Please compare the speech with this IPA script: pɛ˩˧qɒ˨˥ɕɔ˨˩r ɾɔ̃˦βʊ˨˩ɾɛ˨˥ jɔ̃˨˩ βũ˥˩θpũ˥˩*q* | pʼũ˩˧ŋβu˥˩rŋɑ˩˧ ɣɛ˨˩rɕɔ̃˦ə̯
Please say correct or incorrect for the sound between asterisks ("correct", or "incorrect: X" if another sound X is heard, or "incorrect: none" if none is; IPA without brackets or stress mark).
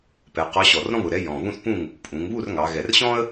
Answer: incorrect: ŋ